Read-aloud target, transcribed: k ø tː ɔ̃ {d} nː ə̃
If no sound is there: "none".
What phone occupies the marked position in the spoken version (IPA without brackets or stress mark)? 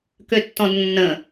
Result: d